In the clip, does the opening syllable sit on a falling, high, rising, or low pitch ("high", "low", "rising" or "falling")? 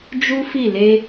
high